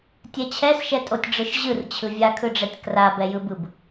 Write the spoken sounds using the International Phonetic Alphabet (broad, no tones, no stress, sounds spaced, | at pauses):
tʲ ɛ t͡ɕʰ ɛ s ʃ ɛ tʼ o tʲ ɖ͡ʐ ɯ ʃ ʑ ɯ r t͡ɕʰ ɯ vʲ a kʰ ɯ ɖ͡ʐ ɛ tʲ k r a b ɛ j ɯ b ɯ b